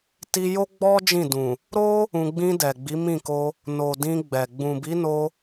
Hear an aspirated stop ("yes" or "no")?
no